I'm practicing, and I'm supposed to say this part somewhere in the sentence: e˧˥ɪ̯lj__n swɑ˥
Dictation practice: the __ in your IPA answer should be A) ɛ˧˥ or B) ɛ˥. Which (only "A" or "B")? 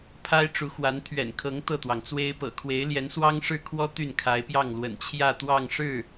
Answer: A